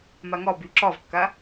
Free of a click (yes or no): no